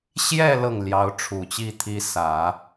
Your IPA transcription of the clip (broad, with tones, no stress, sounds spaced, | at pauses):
ɕ j ɛ˥˧ l ɤ˥˩ ŋ l j ɑ˧˥ ʊ̯ ʈ͡ʂʰ u˨˩ t͡ɕ i˥˩ t̪ʰ i˥ s ä˨˩˦